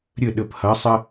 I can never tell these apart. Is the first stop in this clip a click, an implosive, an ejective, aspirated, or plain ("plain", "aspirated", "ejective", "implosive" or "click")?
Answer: implosive